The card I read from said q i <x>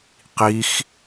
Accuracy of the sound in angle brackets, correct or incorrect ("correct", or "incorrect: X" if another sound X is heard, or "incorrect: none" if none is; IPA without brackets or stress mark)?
correct